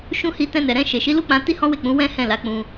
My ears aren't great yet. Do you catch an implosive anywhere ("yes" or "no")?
no